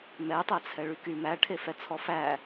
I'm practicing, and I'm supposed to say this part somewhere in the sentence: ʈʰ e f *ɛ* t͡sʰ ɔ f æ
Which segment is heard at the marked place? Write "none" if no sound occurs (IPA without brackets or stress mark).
ɛ